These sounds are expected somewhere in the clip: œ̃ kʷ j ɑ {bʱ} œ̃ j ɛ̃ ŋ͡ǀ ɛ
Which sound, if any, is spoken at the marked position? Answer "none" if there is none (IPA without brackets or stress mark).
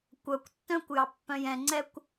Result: pː